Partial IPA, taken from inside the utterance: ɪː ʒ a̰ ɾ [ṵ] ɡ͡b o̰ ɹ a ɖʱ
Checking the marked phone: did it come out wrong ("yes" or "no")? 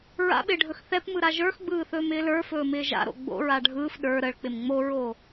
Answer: yes